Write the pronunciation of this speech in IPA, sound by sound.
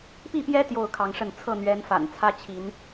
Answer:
p i˥˨ p j ɛ˦ t̪ j o˥˨ ʊ̯ kʰ ɑ˨˦ ŋ ʂ ə˥˨ n t͡sʰ ɤ˥˨ n̪ ɥ ɛ˨˦ n f a̰˨˩ n t͡sʰ ä˦ t͡ɕʰ i˨˦ n

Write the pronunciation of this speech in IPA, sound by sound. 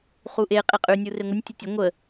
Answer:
χ u ʔ e qʼ e qʼ ʉ nʲ u r e ŋʷ ə nʲ tʲ ə tʲ ɐ ŋʷ ə

